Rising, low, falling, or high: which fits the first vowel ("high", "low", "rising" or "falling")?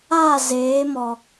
falling